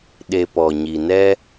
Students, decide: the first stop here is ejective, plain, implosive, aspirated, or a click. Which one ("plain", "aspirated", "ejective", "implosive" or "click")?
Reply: implosive